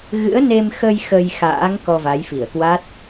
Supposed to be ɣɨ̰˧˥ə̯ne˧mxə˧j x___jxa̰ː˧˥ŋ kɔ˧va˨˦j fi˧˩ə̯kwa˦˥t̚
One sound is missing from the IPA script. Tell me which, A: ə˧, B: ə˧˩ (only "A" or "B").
A